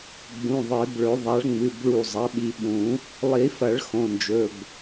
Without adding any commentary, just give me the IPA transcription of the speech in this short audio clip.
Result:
ɡ͡b ũ˩˧˩ ðˤ e˨˩˦ b ɭ ɵ˨˩˦ ðˤ a˩˥ ɭ ŋ͡m ɨ˩˧˩ b ɭ u˧˩ zˤ ɐ˩˥ ɓ i˩˧˩ ɓ ũ˨˩˦ | lˠ i˨˩˦ f ɐ˨˩˦ ɭ x õ˩˧˩ n d͡ʒ ɵ˩˧˩ b

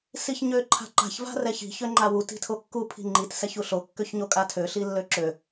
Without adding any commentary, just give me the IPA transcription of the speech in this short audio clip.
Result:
s i ç ɲ ø ǃʰ a̤ ǃ a̤ ç v a̤ r ɛ ç i̤ ç ø ŋ͡ǃ a w u t i̤ tʰ o kː u pʰ i̤ ŋ͡ǃ i t s ɛ ç u ɬ o kː ø ç ɲ o kʼ a tʰ ø ɬ i lː ø ǁ ø

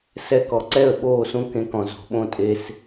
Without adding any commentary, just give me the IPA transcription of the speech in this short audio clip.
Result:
s ɛ˧ k ɔ˨ ǀ ɛ˦˨ ə̯ ɓ oː˦˨ s ũ˦ k ẽ˧ k ɔ̃˨ z o̤˨ ɓ õ˦ tʼ e˧ s

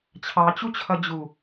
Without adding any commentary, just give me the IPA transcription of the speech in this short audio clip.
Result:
t͡ɕʰ ɑ t͡ɕ u t͡ɕʰ ʌ d͡ʑ u

